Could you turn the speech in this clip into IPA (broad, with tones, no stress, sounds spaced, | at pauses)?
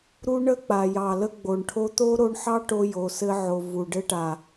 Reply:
ɾ u˦ ɳ ə˦ k͡p a˨ j ɑ˨ l ə˧ ɡ͡b o˨ ɳ ʈʰ o˧ t̪ o˦ ɾ o˧ ɳ ħ ɑ˦ ʈ o˧ j o˨ s ɘ˧ ʕ o˨ v u˨ ɖ ɘ˧ ʈ a˨